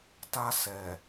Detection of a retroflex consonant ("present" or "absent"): absent